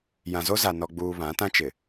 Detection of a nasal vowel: present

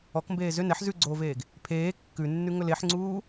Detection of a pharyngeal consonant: present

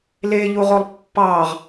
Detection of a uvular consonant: present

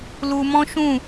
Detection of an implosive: absent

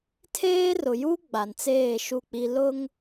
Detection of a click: absent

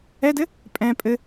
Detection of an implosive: absent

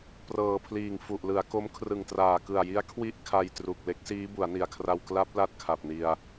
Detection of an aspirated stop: present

